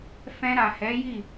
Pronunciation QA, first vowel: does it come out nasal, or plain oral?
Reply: nasal